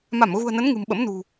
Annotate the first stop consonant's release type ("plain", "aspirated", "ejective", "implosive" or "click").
implosive